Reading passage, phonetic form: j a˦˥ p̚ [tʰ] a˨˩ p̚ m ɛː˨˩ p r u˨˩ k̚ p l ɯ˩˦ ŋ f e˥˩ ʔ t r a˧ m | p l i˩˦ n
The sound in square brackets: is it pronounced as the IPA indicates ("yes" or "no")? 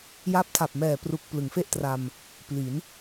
yes